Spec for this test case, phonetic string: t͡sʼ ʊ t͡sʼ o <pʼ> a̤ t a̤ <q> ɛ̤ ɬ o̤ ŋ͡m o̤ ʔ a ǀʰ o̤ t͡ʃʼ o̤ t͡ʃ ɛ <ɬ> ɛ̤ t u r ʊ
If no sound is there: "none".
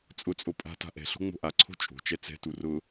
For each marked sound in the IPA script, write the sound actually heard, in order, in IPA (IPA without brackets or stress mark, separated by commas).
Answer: pʼ, ʔ, t͡s